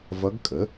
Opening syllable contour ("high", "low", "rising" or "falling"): rising